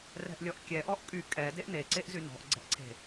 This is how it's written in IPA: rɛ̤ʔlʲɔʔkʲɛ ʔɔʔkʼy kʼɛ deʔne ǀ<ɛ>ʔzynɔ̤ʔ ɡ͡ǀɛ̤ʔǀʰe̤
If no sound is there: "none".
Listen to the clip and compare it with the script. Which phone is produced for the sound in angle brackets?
e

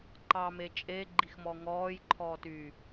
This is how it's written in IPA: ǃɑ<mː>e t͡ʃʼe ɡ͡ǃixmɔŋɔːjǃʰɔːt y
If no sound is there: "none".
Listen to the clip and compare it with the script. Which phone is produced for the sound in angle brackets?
m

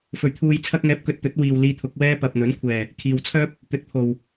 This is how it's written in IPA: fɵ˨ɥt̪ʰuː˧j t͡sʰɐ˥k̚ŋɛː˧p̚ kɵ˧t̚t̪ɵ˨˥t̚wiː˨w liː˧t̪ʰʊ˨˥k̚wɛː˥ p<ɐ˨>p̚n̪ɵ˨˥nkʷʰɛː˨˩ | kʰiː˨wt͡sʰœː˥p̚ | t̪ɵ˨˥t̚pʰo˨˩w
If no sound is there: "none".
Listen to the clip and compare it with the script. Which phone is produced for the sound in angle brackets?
ɐ˨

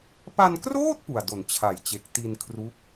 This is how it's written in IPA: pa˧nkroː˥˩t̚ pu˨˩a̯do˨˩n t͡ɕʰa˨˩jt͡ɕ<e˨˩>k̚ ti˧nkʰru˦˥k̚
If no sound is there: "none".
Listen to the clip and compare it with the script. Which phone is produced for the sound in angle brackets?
e˨˩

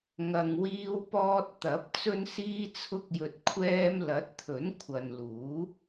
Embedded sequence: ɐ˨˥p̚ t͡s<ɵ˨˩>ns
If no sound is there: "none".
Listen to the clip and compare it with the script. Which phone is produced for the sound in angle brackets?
ɵ˧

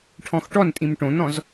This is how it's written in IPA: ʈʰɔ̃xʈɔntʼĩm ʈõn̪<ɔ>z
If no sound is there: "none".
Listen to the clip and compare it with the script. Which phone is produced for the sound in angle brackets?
ɔ̃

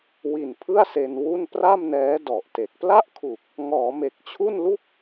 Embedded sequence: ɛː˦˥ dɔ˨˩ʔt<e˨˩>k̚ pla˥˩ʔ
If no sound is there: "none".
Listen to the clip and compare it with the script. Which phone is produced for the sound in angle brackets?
e˨˩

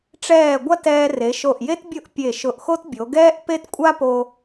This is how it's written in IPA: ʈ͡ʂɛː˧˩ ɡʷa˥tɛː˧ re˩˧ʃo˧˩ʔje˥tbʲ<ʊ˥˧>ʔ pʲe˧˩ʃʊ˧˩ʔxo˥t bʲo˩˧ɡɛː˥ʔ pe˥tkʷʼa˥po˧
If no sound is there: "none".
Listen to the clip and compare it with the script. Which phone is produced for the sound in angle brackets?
ʊ˥˧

